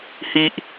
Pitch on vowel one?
high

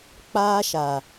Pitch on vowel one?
high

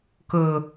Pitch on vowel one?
low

